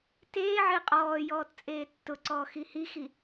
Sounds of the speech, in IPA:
t eː ʕ ɪː qʼ ɔː j ɔː t t͡sʼ eː tː ʊ ǀ ɔː x i h i x i

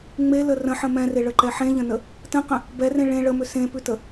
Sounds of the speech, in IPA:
ŋ͡m e l ə r ə̃ ħ ə̃ m ɛ̃ r e ɭ ə ǃ ɛ ħ ẽ ʎ ə̃ n ə | t ə̃ q ə̃ | b ɛ r ẽ ɭ ẽ ɭ ə m ʏ s ẽ p ʉ t ə

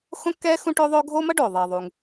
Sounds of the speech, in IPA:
x õ˥ kː ɛː˥ x ũ˥ ʈ o˥ ðˤ o˥ ɡʱ oː˥ m ʌ˥ ɖ oː˩ ðˤ iː˩ ðˤ u˩ ŋ

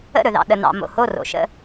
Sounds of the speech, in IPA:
ə̰˦˨ ɾ ɵ˨ ð ɑ̰˨ ɗ ə˨ n ɑ̰˨ m o̰˨ h o˦˨ r o̰˨ ʃ ə̰˦˨

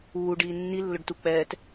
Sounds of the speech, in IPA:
uː ɖ iː nː i lː ʊ ɖ t u k͡p ɛː t

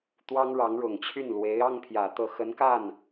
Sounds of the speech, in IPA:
t̪ w ɑ˥ ŋ ɻ ɑ˧˥ ŋ ɻ ʊ˨˩ ŋ t͡ɕʰ y˥˩ n l w e˧˥ ɪ̯ ɑ˥ ŋ pʰ j ä˨˩ t̪ ɤ˥˩ x ə˧˥ n k a˥˩ n

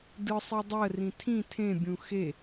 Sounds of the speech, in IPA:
d ɯ sˤ i dˤ ɜ r ĩ tʰ ĩ tʰ ẽ bʲ ũ x e

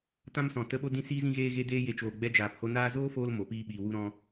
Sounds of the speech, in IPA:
t ã˦ m s ɔ̃˨ t ə˦ ɓ o˦ d ĩ˧ s iː˧ z ĩ˧ ɣ eː˧ ɣ e˧ d eː˧ j e˨ t͡ʃ oː˨ ɡ͡b ɛ˧ d͡ʒ aː˨ p h o˧ n aː˧ z oː˦ f oː˧ l m o˨˦ p iː˦ ɓ iː˧ w u˧ ɾ ɔ̃˧

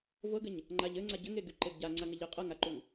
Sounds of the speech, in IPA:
v ɤ ɡ ɘ ɲ | ŋ͡ǃ a ʎ ɘ ŋ͡ǀ a ɟ ɘ ŋ e ɡ y ǃ e ɡ ɟ a ŋ͡ǀ a ŋ ə ʎ ɘ qʼ ɤ ŋ a ǃ u ŋ

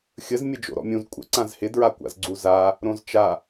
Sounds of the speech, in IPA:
xʲ ə z mʲ ə d͡ʒ o̰ ɾ ɔ̰ mʲ ũ z kʷʼ ə̰ ǀ ã z h ɪ d ɹ a kʷ a̰ z ɡ͡ǀ u z a | ɾ õ z t͡ʃ a

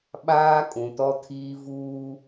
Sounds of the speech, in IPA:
ɓ aː˦ kʼ ũ˨ t ɔ˦ tʰ iː˦ v uː˦

